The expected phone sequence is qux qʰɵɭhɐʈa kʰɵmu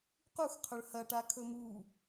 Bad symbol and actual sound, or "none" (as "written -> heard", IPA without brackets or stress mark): none